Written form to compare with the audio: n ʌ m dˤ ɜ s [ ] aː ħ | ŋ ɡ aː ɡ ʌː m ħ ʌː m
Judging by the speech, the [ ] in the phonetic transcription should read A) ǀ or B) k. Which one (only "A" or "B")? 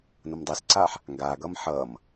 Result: A